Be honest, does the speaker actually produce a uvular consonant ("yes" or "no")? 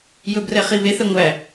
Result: yes